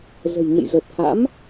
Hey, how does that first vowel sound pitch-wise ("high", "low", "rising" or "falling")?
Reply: low